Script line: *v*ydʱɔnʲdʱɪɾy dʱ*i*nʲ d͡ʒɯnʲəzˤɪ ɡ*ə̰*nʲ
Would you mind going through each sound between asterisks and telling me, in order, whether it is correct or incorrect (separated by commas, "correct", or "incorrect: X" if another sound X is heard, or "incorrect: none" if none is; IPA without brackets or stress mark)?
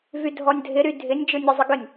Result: correct, incorrect: ɪ, incorrect: ə